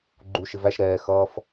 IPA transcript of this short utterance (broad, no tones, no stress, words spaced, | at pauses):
ɡ͡ǃuʃɪ væʃ ɾɛː xʌːf